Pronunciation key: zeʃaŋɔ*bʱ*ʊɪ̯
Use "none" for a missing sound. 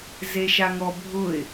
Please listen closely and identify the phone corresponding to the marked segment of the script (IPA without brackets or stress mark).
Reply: bʱ